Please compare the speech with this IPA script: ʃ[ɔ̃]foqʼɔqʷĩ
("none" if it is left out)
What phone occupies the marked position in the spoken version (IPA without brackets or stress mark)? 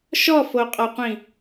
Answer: ɔ